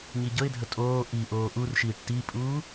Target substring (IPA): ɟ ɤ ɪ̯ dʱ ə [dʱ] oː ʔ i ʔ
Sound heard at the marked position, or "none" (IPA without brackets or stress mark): tʼ